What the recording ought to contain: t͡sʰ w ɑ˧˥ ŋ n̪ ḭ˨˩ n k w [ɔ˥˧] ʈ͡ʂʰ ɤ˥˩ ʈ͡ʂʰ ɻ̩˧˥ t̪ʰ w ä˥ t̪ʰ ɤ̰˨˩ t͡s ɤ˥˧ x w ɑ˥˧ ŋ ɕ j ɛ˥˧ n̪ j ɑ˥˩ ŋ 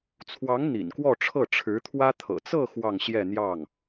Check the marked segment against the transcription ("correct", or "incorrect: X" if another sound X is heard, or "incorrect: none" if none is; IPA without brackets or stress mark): correct